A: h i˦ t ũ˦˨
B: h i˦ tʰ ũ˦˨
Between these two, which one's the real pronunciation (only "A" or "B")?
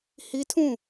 B